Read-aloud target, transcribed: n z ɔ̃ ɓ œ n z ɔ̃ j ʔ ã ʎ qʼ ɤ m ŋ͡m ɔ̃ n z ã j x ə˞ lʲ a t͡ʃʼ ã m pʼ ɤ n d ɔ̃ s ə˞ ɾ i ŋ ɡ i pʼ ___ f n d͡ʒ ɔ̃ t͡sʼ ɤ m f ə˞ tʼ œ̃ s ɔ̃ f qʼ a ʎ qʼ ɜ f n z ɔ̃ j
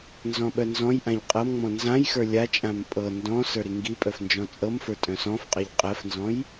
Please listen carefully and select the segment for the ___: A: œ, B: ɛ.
A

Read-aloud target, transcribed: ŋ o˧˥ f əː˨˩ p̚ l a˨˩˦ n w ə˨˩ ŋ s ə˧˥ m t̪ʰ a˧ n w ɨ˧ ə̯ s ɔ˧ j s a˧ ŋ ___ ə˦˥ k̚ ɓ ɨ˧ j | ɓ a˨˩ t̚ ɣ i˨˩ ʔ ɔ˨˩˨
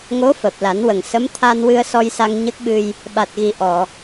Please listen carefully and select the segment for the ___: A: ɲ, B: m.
A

